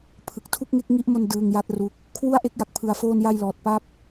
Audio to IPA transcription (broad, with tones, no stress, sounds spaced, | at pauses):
pʰ ɯ˨˩ k̚ tʰ u˥˩ k̚ ŋ e˦˥ k̚ ŋ i˦˥ ʔ m o˧ n d ɯː˧ ŋ j a˦˥ t̚ r u˦˥ k̚ | kʰ w u˥˩ a̯ ʔ e˦˥ k̚ j a˨˩ k̚ pʰ ɯ˧ a̯ f oː˥˩ n j a˥˩ j l ɔː˨˩ t̚ p a˥˩ p̚